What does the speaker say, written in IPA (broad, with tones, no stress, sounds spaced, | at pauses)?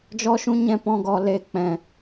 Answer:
d͡ʒ ɔ˦ ʃ ũ˦ ɲ ɛ̃˦ p ɔ̃˧ ɡ ɔ˨ l e˨˦ k͡p ɛ̃˨